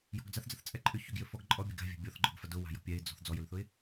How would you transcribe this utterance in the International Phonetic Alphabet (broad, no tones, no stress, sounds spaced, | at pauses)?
j ɔ̤ ɡ d͡z a θ d͡z ɐ θ t͡sʼ ɛ ǃʼ ʏ ç ʏ ɡ j ʏ f ɔ ɡ ǃʼ ɔ bʲ ɛ ɡ a̤ vʲ a̤ bʲ ɔ θ ɡ͡ǃ ʊ ɡ f ɐ d ʊ w a̤ j ɔ̤ pʲ ɛ ɪ̯ d͡z ɔ̤ θ d͡z ɔ j ʏ l θ ʊ ɪ̯